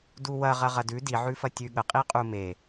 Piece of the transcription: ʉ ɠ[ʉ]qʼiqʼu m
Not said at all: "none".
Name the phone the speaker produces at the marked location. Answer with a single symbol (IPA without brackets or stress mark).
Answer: ə